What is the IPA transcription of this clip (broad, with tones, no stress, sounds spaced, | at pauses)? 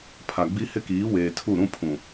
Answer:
pʰ a˨ ɡ͡b i˦ h ɪ˦ k iː˨˦ w eː˨ tʰ u˦˨ ɾ ũ˦ pʰ ũ˨